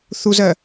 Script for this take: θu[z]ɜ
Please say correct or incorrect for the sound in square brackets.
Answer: correct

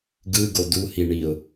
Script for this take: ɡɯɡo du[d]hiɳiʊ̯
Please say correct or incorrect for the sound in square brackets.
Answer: incorrect: none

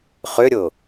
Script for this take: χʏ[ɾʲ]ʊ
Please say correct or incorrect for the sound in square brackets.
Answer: correct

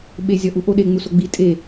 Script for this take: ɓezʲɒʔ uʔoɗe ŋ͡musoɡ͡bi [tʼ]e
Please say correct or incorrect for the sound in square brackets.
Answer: correct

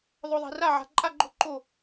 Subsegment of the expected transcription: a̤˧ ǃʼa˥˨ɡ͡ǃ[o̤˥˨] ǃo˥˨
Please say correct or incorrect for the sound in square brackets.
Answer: correct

